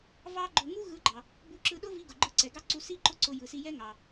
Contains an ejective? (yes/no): no